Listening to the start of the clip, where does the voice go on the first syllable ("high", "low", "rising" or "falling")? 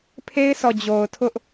high